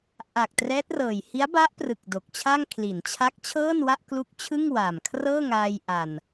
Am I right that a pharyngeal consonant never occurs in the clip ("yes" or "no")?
yes